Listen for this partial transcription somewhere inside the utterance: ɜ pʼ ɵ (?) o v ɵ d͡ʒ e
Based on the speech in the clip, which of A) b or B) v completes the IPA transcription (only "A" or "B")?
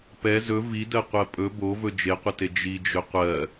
A